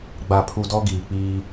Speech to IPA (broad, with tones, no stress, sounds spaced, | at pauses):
ɡ͡b a˨ pʰ u˨ d ɔ˦ ɡ iː˨ k͡p iː˦